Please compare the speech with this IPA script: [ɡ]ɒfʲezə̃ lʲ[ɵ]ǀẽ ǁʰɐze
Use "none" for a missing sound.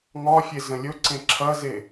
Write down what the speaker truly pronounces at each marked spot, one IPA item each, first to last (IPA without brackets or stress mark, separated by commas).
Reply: ŋ, ɵ